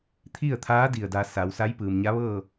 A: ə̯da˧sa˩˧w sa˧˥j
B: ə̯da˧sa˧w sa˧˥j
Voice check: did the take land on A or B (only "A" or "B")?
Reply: A